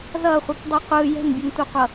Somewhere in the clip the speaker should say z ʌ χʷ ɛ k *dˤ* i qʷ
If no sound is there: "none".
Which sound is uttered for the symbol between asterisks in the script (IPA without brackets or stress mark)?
dˤ